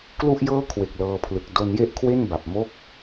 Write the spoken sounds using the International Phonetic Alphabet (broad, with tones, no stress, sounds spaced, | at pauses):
k l u˥˩ ʔ j ɤː˥˩ kʰ w e˨˩ k̚ l ɤː˧ pʰ l ɯ˨˩ k̚ d o˧ n j e˥˩ ʔ kʰ w e˥˩ n b a˨˩ p̚ m o˥˩ k̚